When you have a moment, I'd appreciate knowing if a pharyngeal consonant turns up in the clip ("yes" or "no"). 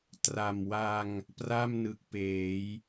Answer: no